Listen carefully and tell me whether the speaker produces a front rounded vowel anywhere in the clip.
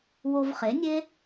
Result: no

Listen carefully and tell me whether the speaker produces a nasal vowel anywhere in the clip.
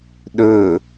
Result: no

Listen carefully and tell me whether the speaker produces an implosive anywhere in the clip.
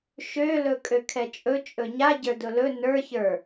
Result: no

